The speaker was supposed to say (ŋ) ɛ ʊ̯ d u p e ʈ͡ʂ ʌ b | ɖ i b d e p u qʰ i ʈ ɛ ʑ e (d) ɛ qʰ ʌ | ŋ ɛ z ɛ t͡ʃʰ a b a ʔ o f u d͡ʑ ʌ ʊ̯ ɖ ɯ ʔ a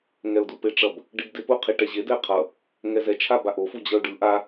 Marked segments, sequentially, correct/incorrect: correct, correct

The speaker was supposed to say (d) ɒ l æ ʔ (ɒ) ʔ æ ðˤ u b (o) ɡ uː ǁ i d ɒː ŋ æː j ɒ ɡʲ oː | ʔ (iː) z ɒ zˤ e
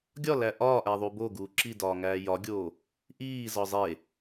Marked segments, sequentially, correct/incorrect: incorrect, incorrect, correct, correct

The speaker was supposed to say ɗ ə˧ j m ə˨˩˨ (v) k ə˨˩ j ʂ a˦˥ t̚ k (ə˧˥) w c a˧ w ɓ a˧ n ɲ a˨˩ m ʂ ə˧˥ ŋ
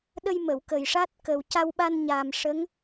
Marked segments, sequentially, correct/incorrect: incorrect, incorrect

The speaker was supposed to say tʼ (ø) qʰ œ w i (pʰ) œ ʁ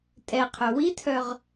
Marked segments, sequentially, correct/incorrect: incorrect, incorrect

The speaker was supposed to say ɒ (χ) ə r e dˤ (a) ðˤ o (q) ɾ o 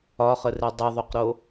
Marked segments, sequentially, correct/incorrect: correct, incorrect, correct

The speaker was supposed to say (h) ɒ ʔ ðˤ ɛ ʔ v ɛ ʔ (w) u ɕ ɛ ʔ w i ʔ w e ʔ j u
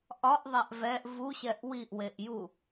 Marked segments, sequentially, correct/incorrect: incorrect, incorrect

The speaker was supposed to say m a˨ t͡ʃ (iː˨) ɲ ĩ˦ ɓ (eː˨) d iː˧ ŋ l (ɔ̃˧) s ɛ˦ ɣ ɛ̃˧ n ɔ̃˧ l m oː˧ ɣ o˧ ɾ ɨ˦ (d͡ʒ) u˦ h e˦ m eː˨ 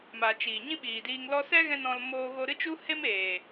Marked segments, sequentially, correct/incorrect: correct, incorrect, incorrect, incorrect

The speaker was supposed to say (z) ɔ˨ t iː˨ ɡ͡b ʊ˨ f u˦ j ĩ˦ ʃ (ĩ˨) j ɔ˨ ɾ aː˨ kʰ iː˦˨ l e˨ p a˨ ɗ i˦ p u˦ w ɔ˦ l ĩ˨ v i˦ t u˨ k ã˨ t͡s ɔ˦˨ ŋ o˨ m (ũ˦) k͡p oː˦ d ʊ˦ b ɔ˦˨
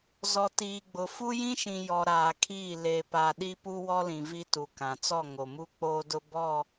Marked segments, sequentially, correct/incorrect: correct, correct, incorrect

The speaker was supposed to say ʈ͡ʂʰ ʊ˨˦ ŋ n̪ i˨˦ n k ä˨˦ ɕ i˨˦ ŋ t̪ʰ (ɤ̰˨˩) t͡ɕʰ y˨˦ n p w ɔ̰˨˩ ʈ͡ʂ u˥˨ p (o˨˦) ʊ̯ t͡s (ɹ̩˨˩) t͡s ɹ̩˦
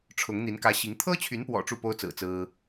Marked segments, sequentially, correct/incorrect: incorrect, incorrect, correct

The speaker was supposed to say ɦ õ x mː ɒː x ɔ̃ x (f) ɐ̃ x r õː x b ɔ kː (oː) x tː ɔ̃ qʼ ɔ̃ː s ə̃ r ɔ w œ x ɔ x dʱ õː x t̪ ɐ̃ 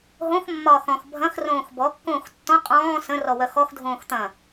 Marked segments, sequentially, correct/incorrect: incorrect, incorrect

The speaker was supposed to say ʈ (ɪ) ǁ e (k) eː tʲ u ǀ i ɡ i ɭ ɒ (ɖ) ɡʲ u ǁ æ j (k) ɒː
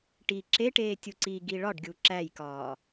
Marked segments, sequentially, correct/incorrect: incorrect, incorrect, correct, correct

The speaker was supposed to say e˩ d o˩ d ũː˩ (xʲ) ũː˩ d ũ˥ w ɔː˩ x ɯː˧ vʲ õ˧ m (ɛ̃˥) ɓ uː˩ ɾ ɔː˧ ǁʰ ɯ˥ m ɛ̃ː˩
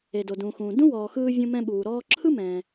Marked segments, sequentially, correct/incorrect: incorrect, incorrect

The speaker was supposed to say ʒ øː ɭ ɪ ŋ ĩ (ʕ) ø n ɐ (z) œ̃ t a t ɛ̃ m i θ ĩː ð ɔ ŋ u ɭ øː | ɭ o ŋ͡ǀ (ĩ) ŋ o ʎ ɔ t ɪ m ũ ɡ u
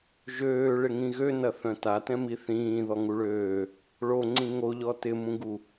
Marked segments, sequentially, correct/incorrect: incorrect, incorrect, correct

